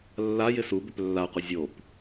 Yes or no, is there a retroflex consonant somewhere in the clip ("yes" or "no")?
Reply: no